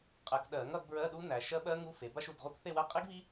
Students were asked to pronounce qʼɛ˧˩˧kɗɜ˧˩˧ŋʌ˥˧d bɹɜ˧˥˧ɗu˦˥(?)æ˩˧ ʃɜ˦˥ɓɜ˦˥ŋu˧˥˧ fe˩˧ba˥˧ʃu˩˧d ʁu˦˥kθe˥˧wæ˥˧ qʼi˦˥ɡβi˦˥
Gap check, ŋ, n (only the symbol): n